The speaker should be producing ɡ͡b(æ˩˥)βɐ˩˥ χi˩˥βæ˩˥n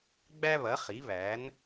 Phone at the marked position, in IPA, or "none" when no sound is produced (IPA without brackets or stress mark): æ˥